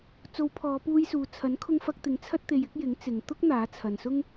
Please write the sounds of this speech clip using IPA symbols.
t͡s o˨˧ w pʰ ɔː˨˧ p uː˧ j s uː˨ t͡sʰ ɐ˨˥ n kʰ ʊ˧ ŋ f ɐ˧ k̚ t̪ ɪ˨˥ ŋ t͡sʰ ɐ˧ t̚ t̪ e˨ j ɪ˨˥ k̚ j ɪ˨˥ ŋ t͡s ɪ˨ ŋ t̪ ʊ˥ k̚ n̪ aː˨˥ t͡sʰ ɐ˨ n s ʊ˥ ŋ

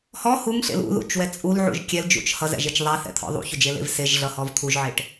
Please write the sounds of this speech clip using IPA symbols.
h ɔ h u ŋ ɬ ḛ l ṵ ð ṵ t͡ʃ w ɛ t͡sʼ u l ʕ ṵ ʒ kʲ ɛ l d͡ʒ ṵ t͡ʃ h ʌ z ɛ̰ ʒ e t͡ʃ ðˤ ɛ θ ɛ̰ t̪ʰ ɔ̰ ðˤ ṵ ç ʏ d͡ʒ e l ḛ v s e ʒ ɮ ʌ h ɔ v t̪ʰ u ʒ ʕ e ʈ

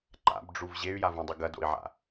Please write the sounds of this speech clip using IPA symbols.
ǃ a̰ b ɖ͡ʐ u v ʑ e y̯ j a v ũ dˤ ɨ ɡ ɐ d o̰ i̯ ʕ a̰

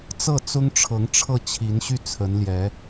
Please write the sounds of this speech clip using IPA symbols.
t͡s ɤ˥˩ t͡s ʊ˥ ŋ ʈ͡ʂʰ ɤ˧˥ ŋ ʈ͡ʂʰ ɤ˥˩ t͡ɕʰ i˧˥ n ɕ y˥˩ t͡sʰ ə˧˥ n l j ɛ˧˥

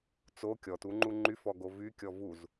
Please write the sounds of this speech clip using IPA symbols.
t͡s o kʲ ɔ t u ŋ͡ǃ u ŋ͡ǃ y f ɔ ɡ o v y kʲ ɔ v u z

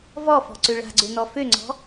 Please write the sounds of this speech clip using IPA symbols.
v ɔ f ɔ̤ ǀ ø ɭ a̤ ɡ͡ǀ ø n ɔ f ø ŋ͡ǀ ɔ̤

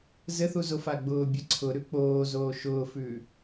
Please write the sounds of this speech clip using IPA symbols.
z ɘ θ u z o f a ɡ͡b ʊː bʲ ɘ ǀʰ ʊ ɾ ʉ k͡p oː z oː ʃ ʊː f ʉː

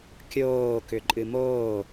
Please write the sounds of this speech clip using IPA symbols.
kʲ oː k ʏ ǃʼ ɨ m oː

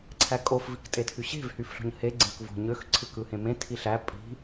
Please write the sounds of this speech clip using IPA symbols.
ǀʰ æ kʼ o f v i k tʼ e tʰ y ɕ e̤ v h y f ɬ o̤ ɲ h e ɡ͡ǀ ẽ k v o̤ ɲ ø x ǀʰ ɯ k ɯ h ẽ m ẽ tʰ i ɬ æ pʼ i̤

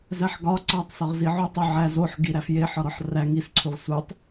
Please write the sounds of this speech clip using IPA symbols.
z æ ħ ɡ ɒ ǀ ɒ tˤ s ɒ ʁ z i ʕ u tˤ u ʕ æ z o ħ ɡ i ɾ æ f j e ħ ɒ ɾ ɒ ħ r æ ŋ i s ǀʰ u ʁ s u tˤ

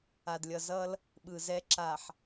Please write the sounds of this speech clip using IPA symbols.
a˨ d lʲ ʌ˨ z ʌ˦ l | ɓ ɯ˨ z ɛ˦ ǁ a˨ ħ

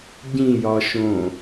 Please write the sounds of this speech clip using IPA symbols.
ɟ ĩ j ɒ ʃ õ

